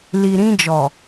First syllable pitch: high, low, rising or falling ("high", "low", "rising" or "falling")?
low